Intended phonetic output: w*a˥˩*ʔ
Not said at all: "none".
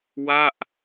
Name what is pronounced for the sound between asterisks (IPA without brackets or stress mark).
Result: a˥˩